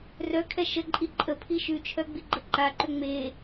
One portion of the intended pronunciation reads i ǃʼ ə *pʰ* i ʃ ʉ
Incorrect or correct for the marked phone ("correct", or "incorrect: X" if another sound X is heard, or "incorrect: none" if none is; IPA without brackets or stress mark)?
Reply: correct